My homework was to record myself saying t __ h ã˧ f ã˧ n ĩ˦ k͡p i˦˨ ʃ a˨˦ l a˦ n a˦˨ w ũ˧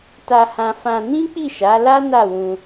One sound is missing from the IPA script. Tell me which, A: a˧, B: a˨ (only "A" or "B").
A